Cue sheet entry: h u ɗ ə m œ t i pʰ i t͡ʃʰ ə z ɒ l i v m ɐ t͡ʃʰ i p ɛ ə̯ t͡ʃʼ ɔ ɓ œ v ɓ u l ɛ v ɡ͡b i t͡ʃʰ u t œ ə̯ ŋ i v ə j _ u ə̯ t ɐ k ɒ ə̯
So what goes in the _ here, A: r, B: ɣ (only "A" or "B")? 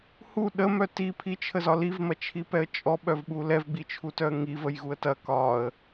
B